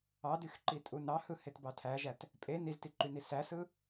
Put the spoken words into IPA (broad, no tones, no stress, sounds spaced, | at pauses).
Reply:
ɑ d y x ǃ i tʼ u n ɑ h ɯ h e t b ɑ tʰ æ ʒ æ t | pʼ e n i z t i ǃ y n i s æ s ɯ